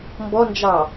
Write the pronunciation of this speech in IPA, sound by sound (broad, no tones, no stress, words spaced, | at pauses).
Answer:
mbɔnd͡ʒɑ